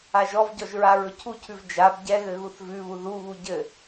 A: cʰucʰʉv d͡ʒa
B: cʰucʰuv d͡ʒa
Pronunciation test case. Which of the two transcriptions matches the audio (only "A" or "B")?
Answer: A